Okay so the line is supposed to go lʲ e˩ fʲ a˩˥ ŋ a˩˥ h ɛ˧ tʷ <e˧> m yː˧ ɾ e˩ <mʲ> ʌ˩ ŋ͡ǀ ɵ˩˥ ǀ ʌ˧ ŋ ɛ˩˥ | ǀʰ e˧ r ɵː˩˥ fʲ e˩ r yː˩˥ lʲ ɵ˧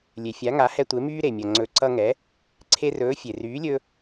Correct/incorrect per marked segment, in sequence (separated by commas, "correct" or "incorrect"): incorrect, correct